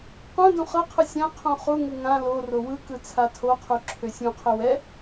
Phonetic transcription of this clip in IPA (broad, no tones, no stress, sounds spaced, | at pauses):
q ũ d ũ χ ɤ qʰ ɯ sʲ ã qʰ ũ χ u ŋ ɯ ŋ ã l o r o w ɯ k ɯ t͡sʰ a tʰ o qʰ u ǁʰ ø sʲ ũ qʰ ø w ɛ